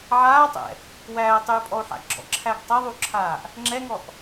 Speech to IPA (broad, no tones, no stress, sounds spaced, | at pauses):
ʕ aː tˤ ɛ̰ | w æː tˤ yː pʼ ɔ u̯ ħ a̰ ɡ͡ǁ ɔ̰ ǁʰ æː ɡ tˤ æ ðˤ u ǁʰ aː ʔ | ŋ͡ǁ ɛ ŋ ɔ ʔ